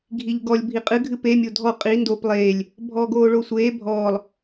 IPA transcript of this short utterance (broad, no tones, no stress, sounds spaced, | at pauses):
ɡʱ i ʎ ɡ ɔ lʲ bʱ i qʼ ɨ ɡʱ ɨ p e mʲ o dʱ ɔ qʼ i n d o p lˠ eː lʲ | bʱ ɔː ɡ oː ɭ o sʷ eː bʱ ɔː lˠ